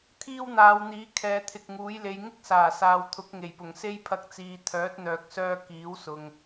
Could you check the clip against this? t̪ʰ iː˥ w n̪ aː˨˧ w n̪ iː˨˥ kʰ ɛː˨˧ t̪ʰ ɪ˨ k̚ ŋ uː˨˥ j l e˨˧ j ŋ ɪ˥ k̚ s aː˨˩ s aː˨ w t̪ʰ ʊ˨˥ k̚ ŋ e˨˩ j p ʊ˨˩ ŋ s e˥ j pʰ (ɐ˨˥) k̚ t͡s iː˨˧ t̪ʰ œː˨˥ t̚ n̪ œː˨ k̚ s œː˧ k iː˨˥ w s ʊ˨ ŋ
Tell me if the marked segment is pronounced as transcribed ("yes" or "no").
no